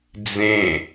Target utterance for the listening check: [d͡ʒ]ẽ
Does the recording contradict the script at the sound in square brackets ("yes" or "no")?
yes